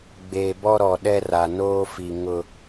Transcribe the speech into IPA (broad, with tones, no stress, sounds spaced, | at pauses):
ɡ͡b eː˨ b ɔ˦ ɾ ɔ˨ ɗ ɛ˦ r a˨ n oː˦ f i˨ ŋ ʊ˦